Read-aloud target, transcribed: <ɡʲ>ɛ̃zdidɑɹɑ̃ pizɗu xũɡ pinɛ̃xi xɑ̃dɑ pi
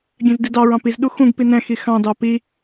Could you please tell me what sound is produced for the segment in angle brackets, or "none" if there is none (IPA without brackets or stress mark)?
ɡʲ